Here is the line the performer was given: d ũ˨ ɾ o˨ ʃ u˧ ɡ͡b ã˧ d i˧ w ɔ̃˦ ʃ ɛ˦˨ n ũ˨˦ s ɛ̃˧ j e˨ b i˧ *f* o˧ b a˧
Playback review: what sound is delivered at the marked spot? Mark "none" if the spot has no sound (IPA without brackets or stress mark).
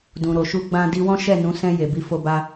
f